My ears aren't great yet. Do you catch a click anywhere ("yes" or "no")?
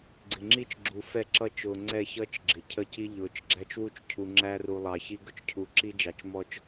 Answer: yes